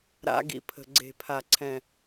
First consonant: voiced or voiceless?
voiced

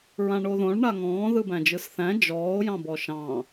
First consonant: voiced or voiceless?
voiced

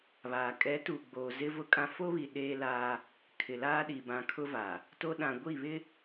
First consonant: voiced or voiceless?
voiced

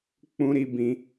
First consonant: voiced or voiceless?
voiceless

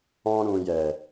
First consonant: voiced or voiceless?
voiced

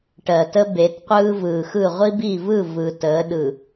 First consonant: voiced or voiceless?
voiceless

